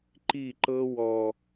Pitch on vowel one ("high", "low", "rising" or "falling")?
falling